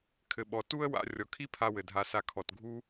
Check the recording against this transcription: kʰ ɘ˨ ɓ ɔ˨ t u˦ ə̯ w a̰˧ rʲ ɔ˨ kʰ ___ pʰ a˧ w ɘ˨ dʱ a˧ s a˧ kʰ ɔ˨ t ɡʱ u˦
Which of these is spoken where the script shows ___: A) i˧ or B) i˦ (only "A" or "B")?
B